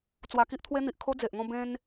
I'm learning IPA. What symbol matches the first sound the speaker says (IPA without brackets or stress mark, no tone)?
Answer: t͡s